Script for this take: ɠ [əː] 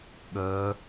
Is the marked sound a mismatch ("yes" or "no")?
no